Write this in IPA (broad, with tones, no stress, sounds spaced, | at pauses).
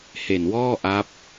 h e˨˩ n w ɔː˥˩ ʔ a˦˥ p̚